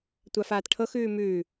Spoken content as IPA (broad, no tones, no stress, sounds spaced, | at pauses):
tʷ a f aː t ʈʰ ɤ x ʉː m ʉː